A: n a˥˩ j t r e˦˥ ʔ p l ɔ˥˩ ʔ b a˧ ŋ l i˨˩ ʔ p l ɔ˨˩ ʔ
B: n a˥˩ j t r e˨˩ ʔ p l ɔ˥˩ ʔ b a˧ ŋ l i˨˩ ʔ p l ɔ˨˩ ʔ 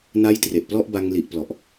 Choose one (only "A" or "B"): B